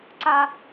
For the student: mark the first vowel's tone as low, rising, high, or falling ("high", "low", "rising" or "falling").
high